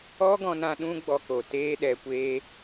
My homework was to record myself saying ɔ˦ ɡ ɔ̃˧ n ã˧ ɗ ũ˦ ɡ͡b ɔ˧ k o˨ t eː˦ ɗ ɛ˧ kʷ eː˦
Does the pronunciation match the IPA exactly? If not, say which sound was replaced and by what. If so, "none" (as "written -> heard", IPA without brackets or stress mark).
none